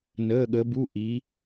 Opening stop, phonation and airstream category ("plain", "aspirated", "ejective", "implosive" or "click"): implosive